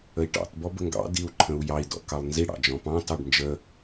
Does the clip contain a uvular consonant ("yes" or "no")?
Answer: no